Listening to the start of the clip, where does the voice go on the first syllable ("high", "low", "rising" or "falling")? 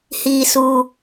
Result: low